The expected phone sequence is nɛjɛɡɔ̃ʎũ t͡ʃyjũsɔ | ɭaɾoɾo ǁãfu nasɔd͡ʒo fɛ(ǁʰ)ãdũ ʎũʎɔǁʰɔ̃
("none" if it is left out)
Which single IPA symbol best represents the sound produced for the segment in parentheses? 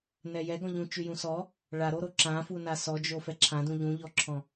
ǁʰ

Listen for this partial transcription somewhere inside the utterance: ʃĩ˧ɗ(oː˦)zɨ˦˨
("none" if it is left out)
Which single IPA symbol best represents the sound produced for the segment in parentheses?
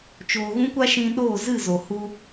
oː˦˨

